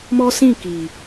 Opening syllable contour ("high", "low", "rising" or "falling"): high